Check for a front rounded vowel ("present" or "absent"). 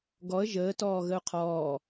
absent